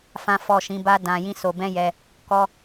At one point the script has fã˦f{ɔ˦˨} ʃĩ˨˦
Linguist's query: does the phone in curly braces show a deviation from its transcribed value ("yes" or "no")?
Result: no